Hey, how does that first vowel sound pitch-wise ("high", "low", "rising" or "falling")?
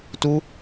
high